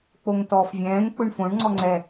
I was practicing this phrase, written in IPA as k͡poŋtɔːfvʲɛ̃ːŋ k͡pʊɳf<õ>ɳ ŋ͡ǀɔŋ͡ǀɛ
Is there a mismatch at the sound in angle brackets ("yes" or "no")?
no